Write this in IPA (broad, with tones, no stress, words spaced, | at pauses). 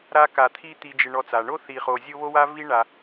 ɾa˦ka˨t̪ʰi˦ t̪i˨d͡ʒɪ˨ ɳɔ˨t͡sa˩ɳo˥ θi˨χo˨ zʲo˥βo˥wa˥ vi˦ɳa˨